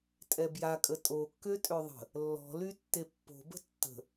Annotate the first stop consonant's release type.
ejective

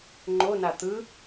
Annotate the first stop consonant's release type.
click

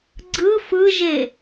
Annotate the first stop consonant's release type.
click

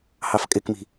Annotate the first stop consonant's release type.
ejective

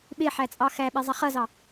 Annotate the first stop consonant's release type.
implosive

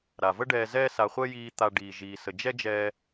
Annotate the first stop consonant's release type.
plain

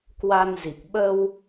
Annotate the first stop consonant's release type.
plain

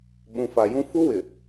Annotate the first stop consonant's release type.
implosive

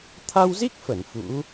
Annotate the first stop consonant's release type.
aspirated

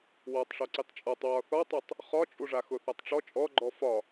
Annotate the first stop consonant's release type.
plain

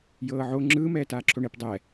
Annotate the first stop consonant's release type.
click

